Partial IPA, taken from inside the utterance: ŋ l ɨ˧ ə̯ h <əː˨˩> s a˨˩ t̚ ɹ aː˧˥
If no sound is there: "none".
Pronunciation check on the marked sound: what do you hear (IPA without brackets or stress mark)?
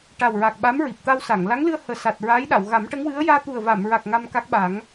əː˨˩